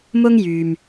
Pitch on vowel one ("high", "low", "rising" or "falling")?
high